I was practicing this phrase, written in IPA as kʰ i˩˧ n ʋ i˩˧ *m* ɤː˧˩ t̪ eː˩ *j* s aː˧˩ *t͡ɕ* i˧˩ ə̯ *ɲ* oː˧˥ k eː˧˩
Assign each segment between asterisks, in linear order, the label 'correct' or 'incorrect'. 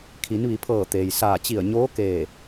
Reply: incorrect: pʰ, correct, correct, correct

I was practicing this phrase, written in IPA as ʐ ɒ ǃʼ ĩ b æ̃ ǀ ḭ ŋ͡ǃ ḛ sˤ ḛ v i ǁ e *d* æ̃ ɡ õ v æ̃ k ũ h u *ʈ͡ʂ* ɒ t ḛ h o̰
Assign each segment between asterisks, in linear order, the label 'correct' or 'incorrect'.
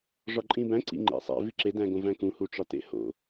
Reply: correct, correct

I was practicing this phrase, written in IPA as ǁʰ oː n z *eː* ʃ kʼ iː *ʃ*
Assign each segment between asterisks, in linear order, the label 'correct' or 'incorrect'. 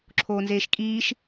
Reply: correct, correct

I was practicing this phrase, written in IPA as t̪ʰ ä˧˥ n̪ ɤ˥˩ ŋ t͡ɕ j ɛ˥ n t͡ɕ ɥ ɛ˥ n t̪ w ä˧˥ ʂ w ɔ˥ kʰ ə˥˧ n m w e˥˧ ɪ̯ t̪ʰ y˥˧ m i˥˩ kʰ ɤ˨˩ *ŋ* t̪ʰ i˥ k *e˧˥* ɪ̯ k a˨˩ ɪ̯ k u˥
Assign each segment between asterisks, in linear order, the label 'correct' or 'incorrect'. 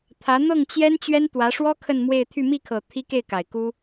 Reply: incorrect: none, incorrect: e˥˩

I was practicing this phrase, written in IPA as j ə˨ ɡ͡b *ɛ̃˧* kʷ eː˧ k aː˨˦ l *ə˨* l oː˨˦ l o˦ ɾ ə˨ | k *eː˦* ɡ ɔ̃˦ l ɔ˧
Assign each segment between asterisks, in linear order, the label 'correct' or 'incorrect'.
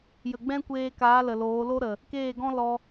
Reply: incorrect: ɛ̃˦, correct, incorrect: eː˦˨

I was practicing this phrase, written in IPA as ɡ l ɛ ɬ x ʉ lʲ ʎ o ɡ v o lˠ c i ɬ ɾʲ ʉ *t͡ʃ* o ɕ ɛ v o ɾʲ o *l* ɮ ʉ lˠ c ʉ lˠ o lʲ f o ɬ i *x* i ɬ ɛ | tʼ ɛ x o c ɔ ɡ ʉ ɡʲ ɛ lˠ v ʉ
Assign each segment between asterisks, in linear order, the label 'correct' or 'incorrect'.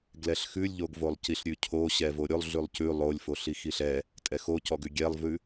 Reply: incorrect: cʰ, incorrect: lˠ, correct

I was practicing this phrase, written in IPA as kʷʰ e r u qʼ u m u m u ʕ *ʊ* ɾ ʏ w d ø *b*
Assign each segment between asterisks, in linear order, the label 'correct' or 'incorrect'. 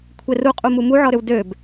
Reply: incorrect: ɔ, correct

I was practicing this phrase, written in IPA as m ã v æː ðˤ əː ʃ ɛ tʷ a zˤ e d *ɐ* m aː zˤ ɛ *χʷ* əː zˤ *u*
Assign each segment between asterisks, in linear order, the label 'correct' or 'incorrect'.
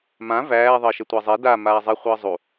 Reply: incorrect: a, correct, correct

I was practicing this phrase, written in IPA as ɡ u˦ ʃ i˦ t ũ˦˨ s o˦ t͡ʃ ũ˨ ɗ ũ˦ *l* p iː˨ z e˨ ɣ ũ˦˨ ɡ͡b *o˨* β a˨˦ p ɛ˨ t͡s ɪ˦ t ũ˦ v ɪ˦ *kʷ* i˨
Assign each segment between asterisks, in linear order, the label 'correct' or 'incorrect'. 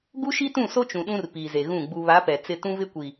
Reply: incorrect: r, incorrect: u˨, correct

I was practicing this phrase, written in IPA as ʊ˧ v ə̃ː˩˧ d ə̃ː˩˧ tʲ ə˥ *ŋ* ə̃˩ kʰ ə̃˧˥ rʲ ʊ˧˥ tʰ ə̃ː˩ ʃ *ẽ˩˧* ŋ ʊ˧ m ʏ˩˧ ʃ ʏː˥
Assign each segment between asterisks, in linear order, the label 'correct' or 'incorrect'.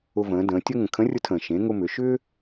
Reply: correct, correct

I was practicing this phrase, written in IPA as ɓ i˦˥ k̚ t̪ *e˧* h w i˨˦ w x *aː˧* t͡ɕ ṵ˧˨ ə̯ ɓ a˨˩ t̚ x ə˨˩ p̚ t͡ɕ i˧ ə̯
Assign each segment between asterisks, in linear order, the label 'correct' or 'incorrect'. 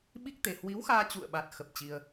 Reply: incorrect: e˨˩, correct

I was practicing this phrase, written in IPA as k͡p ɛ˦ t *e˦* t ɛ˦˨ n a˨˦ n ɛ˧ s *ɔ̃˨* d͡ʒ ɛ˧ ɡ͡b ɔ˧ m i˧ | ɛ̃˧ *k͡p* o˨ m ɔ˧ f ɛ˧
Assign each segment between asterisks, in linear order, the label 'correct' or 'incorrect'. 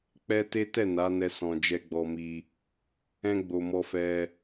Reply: correct, correct, incorrect: ɡ͡b

